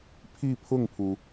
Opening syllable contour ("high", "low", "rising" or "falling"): falling